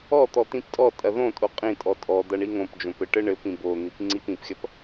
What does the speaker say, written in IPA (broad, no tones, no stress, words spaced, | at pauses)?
ɔt̪ɔ t̪ĩptʼɔtʼɐ ðõtʼo qʼĩtʼɔ tʼɔ d̪ɐɳiŋõpd͡ʒõp ɘʈɘɳɘpĩ bo n̪ipŋ͡ǀipĩpxʲɐp